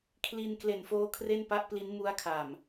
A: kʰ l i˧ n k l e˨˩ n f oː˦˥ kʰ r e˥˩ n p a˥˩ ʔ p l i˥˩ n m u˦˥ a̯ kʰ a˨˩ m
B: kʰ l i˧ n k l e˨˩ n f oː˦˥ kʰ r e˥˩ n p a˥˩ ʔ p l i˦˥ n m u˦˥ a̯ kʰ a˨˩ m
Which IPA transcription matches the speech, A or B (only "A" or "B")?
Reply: B